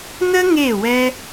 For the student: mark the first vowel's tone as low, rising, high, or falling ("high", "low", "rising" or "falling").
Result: high